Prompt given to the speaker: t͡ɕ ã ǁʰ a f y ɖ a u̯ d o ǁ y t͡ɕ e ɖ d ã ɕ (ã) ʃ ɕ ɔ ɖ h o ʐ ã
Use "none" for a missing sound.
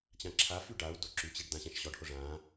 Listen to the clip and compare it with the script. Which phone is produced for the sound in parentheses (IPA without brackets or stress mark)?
ã